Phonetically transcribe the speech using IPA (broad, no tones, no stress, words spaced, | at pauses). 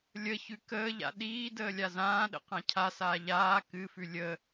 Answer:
lʲəçʉ kəːʎa̰ ɗiː dəːlʲazãːɗə̰ qãcʰasaː ʎaː kɨfʉ lʲə